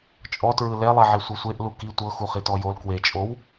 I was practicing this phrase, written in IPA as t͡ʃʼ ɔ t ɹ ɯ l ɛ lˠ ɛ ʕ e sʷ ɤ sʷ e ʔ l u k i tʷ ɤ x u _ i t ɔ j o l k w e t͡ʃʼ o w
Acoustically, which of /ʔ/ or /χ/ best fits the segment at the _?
χ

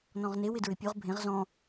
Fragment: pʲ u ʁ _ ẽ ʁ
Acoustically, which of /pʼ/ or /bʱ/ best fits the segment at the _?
bʱ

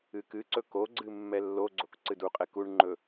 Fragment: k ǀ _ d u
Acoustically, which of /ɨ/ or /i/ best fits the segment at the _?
ɨ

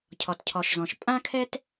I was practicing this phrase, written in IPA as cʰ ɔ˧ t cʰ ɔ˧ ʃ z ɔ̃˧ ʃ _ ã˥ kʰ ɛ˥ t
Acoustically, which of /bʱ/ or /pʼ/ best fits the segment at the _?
pʼ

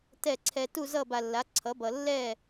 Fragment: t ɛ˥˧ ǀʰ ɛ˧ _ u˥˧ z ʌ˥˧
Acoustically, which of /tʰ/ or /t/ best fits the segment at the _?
t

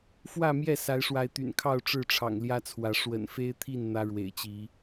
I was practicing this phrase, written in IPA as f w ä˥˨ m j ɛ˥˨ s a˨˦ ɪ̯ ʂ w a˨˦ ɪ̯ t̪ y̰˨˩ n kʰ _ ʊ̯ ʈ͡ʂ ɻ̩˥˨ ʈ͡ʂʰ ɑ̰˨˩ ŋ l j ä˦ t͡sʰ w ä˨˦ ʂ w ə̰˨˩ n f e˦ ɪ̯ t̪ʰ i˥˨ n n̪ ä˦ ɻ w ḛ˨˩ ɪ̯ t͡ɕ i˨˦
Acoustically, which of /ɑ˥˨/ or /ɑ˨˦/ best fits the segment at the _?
ɑ˥˨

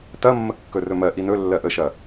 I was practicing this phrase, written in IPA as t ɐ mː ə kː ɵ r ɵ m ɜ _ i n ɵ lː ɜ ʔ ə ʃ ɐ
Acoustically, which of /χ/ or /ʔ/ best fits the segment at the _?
ʔ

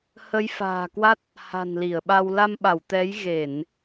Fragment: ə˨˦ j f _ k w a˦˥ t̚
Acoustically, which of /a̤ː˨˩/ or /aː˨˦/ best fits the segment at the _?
a̤ː˨˩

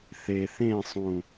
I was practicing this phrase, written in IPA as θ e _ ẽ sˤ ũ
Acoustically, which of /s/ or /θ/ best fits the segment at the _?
θ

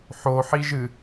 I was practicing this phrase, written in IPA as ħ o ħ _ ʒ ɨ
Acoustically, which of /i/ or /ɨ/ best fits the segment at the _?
i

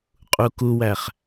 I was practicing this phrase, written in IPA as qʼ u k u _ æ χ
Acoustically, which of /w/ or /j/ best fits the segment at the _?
w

